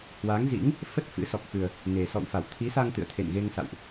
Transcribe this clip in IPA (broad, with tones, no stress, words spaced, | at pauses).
hwa˨˦ŋzḭ˧˥ŋ | fə˦˥t̚ fɨ̰˧˥ sɔ˨˩k̚fɨ˨˩ə̯ | ne˨˩ sɔ̰˧˨wfa˧˩wt̪ʰi˨˦sa˧ŋ t̪ɨ̰˧˨ə̯t̪ʰḛ˧˨nɣe˧ŋsa̰˧˨wʔ